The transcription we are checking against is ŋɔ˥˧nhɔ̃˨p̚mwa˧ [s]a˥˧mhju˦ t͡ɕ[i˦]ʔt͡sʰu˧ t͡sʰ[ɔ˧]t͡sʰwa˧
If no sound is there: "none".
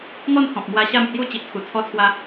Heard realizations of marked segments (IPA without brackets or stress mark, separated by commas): ɕ, i˦, ɔ˧